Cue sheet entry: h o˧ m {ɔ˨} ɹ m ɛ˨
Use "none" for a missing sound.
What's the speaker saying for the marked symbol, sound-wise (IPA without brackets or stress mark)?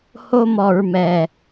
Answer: ɔ˨